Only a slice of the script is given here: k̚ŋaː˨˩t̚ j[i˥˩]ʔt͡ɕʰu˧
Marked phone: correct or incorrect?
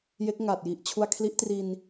incorrect